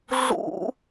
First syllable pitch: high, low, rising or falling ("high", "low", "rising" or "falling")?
high